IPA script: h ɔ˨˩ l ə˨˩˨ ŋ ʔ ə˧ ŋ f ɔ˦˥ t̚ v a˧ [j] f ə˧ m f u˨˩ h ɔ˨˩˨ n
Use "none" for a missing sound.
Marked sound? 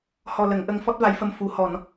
j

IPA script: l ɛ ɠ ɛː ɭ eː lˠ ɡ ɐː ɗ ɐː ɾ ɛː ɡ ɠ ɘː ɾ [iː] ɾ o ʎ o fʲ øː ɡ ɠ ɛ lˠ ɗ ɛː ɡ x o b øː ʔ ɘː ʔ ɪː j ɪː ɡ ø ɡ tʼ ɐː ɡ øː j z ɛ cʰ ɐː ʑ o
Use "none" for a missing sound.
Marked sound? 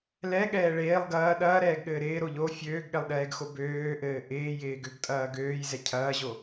ɪː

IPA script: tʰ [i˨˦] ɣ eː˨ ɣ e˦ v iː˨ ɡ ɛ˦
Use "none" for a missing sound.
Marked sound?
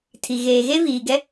i˨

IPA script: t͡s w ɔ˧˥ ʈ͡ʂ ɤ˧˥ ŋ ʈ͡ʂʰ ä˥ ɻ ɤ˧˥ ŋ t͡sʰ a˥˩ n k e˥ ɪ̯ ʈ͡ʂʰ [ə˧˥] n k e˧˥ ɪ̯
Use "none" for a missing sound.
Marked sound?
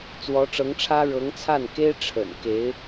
ə̰˨˩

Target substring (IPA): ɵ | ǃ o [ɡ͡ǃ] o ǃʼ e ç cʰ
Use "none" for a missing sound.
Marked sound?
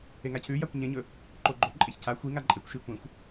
ɡ͡ǃ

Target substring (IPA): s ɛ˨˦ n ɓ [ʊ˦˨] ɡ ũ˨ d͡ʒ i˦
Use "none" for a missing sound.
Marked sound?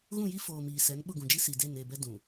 ʊ˦˨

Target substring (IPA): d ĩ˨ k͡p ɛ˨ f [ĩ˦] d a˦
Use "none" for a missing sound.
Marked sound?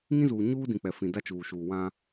ĩ˨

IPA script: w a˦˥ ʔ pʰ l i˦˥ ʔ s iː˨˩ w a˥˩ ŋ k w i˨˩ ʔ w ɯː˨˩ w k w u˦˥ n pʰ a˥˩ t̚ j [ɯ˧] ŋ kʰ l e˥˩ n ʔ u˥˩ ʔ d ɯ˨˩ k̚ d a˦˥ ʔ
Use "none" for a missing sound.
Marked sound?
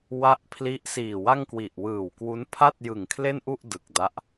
ɯ˨˩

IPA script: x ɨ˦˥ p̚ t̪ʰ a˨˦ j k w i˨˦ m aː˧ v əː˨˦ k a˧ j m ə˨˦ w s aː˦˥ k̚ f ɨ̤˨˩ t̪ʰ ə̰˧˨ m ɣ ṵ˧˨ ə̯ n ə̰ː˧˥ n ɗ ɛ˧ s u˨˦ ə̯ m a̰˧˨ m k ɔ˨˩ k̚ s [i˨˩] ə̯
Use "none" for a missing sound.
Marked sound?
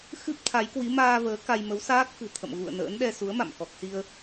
i˧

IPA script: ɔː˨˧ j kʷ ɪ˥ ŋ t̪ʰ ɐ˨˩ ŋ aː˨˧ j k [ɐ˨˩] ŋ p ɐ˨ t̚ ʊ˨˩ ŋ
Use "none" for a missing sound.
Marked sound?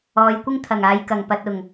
ɐ˨˩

